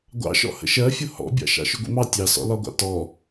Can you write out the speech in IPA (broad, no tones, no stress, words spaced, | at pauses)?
ɡʷɑ̰ʃɔ̰ hə̰ʃɜfʲʊ hɔ̰bʲɑ̰ ʃɑ̰ʃʊɡʷḭmɑ tʲɑsɔ̰lɒɡʷɑ̰ tɔ